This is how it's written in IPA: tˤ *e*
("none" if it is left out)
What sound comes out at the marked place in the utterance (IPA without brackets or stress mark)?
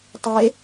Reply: e